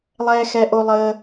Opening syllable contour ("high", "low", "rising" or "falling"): high